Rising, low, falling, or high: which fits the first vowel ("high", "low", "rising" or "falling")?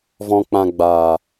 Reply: low